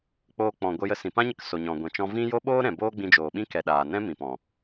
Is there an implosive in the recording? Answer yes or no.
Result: yes